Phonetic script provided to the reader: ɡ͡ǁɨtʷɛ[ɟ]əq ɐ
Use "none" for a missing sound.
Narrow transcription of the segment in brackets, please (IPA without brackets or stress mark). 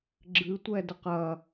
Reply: d